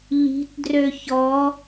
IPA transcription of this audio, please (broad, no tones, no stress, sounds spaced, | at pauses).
ʎ i̤ t d r ø ç ɔ